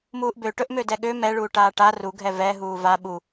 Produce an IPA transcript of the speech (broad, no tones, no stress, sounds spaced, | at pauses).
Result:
m uː ʔ b ø ʈ ɵ ʔ m ø d ɛ ɠ ø m ɛ ɭ uː ʈ aː ʈ a r u ɡʱ ɛ v ɛ ɦ uː v a ɓ u